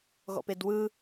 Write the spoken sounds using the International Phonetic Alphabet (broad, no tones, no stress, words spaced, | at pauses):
ɣɔ̰pedwɯ